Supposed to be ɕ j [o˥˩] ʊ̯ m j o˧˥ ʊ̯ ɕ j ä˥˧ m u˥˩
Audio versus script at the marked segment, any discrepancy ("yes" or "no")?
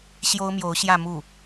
yes